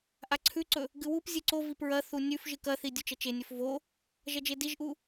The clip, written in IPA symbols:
ʔaǀʰʉǀɵ | ɡɨwupzʲɨ ǀo vipɹɐθu nʲʉf ʒɨkɐθi dʲut͡ʃɐt͡ʃenʲɵf vo | ʒɐd͡ʒediʒʔu

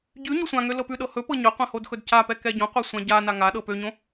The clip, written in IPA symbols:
ɟʉ ɲosʷãŋø lɤpʉɗɤ hɵpɤ ɲɵqʷɛ̃ hodxɵdcapɛ kɛɟõqʷɛ sʷãɟana ŋaɗɤ pøɲõ

